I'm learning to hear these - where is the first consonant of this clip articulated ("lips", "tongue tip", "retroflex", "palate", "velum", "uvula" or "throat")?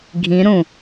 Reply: velum